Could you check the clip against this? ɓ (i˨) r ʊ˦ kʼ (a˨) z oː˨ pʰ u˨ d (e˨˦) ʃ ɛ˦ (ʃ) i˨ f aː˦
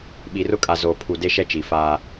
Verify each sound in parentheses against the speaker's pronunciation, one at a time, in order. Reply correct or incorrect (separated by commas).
correct, correct, incorrect, incorrect